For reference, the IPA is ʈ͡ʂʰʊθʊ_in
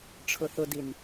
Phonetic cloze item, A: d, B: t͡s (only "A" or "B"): A